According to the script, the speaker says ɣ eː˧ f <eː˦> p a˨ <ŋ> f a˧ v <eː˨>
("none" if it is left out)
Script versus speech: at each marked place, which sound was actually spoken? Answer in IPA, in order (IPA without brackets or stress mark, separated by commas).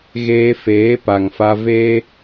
eː˨˦, ŋ, eː˦